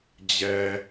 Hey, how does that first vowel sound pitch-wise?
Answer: low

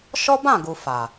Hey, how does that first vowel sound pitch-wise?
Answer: high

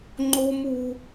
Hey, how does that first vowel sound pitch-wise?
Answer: high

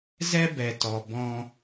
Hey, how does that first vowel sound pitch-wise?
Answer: high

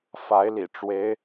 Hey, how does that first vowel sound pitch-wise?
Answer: rising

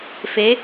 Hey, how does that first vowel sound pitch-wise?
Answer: rising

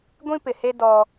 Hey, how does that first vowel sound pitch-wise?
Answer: high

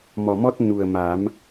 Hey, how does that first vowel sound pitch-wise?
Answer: low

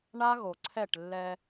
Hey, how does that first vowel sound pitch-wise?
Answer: high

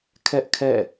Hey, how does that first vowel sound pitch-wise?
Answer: high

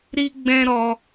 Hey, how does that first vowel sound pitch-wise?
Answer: high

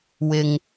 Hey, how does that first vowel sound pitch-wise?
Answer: low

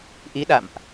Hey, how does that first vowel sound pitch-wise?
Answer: rising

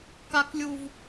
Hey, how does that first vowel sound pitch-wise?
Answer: low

